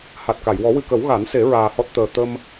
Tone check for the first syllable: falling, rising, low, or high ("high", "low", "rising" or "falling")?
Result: low